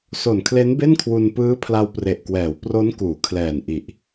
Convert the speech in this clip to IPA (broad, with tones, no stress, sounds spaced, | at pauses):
s o˨˩ n kʰ l e˦˥ n b e˥˩ n kʰ w u˧ n p ɯː˦˥ pʰ l a˧ w p r e˨˩ ʔ k w ɛː˩˦ w p r o˦˥ n k uː˩˦ kʰ l ɛː˨˩ n ʔ i˨˩ ʔ